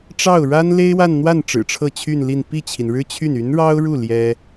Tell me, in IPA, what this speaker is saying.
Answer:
ʈ͡ʂ ɑ˥˩ ʊ̯ ɻ a˥ n l e˥ ɪ̯ w a˥˧ n n̪ w a˥˩ n ʈ͡ʂ ɻ̩˨˩ ʈ͡ʂʰ ɤ˥˧ t͡ɕʰ y˥˧ n l i˥˧ n p i˥˩ t͡ɕʰ i˩ n ɻ ɻ̩˥ t͡ɕʰ y˥˩ n y˧˥ n ɻ ɑ˥ ʊ̯ ɻ u˥˩ l j ɛ˥

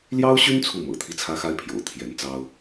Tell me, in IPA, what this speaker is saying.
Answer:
l j ɑ˥ ʊ̯ ɕ y˥ n t͡sʰ u˥˩ m ɤ̰˨˩ t̪ʰ i˥˩ t͡sʰ ä˥ x a˥ ɪ̯ pʰ j o̰˨˩ ʊ̯ t̪ʰ j ɛ˧˥ n t͡s ɑ˥ ʊ̯

